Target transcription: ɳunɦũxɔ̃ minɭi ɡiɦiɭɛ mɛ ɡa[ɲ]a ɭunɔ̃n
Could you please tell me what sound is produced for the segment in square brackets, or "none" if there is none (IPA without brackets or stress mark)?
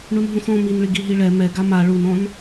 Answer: m